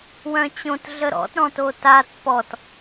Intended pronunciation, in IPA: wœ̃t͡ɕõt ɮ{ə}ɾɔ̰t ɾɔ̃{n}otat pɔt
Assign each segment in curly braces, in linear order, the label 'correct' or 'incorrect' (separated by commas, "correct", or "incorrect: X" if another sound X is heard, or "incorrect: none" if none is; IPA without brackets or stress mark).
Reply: correct, incorrect: t